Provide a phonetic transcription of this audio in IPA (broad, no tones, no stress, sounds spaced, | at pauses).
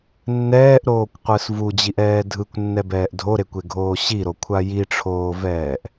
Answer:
nː ɛː ʔ ɾ oː kʷ qʷ ɯ s v u d͡ʑ i ʔ ɛː dʱ ɯ kʷ nː ɛ b ɛː ʔ dʱ o ɾ e kʷ e ɡʱ oː ɕ i ɾ o kʷʰ a j i ʈ͡ʂʰ oː v ɛː ʔ